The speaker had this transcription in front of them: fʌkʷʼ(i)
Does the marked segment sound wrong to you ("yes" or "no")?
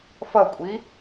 no